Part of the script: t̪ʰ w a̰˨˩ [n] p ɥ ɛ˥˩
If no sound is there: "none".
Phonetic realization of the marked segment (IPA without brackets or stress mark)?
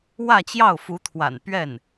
n